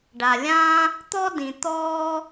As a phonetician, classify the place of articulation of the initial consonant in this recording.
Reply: retroflex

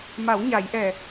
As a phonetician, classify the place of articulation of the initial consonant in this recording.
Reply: labial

